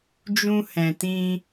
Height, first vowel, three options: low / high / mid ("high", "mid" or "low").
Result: high